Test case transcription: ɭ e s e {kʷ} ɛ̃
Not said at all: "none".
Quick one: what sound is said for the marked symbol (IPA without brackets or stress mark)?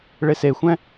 xʷ